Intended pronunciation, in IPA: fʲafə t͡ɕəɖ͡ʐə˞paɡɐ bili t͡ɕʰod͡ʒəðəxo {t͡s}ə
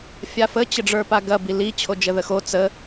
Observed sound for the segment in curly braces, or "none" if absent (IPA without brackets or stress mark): t͡s